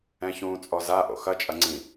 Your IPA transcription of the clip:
ɛ̃çũːt͡sʼɔza ʔo̰xɐ t͡ʃʼɐŋ͡ǀĩ

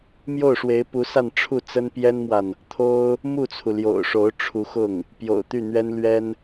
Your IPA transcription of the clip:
mjo˥˩ʊ̯ʂwe˧˥ɪ̯pu˧˥sa˥˧n ʈ͡ʂʰu˥˩t͡sə˥n pjɛ˥nmwa˨n | t̪ʰo˥ʊ̯ | mu˥˩t͡sʰu˩ ljo̰˨˩ʊ̯ʂo˧˥ʊ̯ ʈ͡ʂʰu˧˥xʊ˥˩ŋ | pjo̰˨˩ʊ̯t̪y˥˩n̪ɥɛ˥n lɥɛ˥n

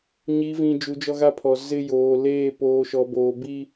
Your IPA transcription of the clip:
ɲi˨˦vĩ˨ d͡ʒu˨˦d͡ʒɔ˦ɣa˦pʰɔ˨ zɪ˦ joː˨leː˦˨ poː˨ʃɔ˨boː˨ bi˦

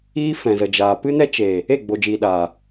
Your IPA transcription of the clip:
iː˧ fɛ̃˨zə˨d͡ʒaː˨ pɨ˦nɛ˦ t͡ʃe˨ | e˦˨ɡ͡bo˨d͡ʒiː˨ɗaː˨

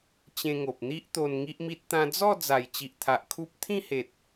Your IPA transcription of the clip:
t͡ɕẽ˧ŋo˨p̚n̪i˦ʔt̪o˧n ŋi˦ʔmi˦t̚ t̪ã˧d͡zɔ˥˧ d͡za˨˩jt͡ɕi˨ʔt̪ʰa˨ʔ kʰu˦p̚ t̪ʰĩ˥˧he˨t̚

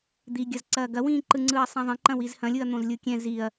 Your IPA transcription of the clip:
d̪iɡʲɐzǀɐː ɡɐwĩːǃɯŋ͡ǀɯːɐ̯ sˤɛ̃ðˤɐ̃ǃɐ̃ wizhɐ̃ lʲɯɐ̯n̪õzlʲɯkʲɛ̃ ziɐ̯

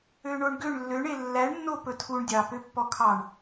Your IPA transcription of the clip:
øɳoɳɡøɳ lːøɳe lːæɳnːo pɵtʰuɳ dʲɑpø pːɔkʰɑɳ

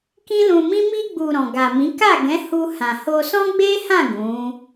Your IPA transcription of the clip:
kĩ˦lũ˧mĩ˦ mi˧ɡ͡bu˨ ɾɔ̃˨ɡa˨mĩ˨˦ ka˦˨ɡɛ̃˨˦ hu˧hã˨ ho˧sɔ̃˦ɡ͡be˦hã˦˨ ɡũ˨˦

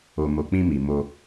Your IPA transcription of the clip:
o˨mo˨ k͡pĩ˧ mi˨mo˧

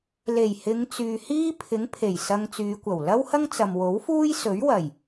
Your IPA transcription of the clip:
le˨˩jhɪ˨˧ŋt͡syː˨ hiː˥pʰɪ˨˥ŋ pʰe˨˩jsɐ˧ŋt͡syː˨˧kʷɐ˨˩w lɐ˥whɐ˥ŋt͡sɐ˨m wo˨˥wfuː˥j sɵ˨˥ɥwɐ˨˩j

